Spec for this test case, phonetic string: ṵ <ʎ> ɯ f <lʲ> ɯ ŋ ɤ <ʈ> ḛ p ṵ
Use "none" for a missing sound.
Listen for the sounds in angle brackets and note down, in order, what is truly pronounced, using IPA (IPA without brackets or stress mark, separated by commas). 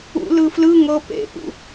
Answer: l, l, p